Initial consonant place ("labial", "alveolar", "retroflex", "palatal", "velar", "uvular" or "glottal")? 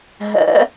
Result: glottal